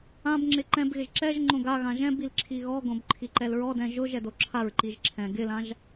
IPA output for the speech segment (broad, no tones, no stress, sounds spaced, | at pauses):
ã b ŋ͡ǁ ɪ ǃ ɛ̃ b ɣ ɪ ʒ ǁ ɛ ʒ ŋ͡ǃ õ ɡ a ɣ ã ʒ ɛ̃ b i l ǁʰ i ɣ ɔ ɡ õ b ǃʰ i ǃ ɛ l ɹ ɔ d ɛ̃ ʒ ʊ ʒ ɛ d o ǁʰ a ɹ ǃ i ʒ ǁʰ ɛ̃ ɡ ɪ l ã ʒ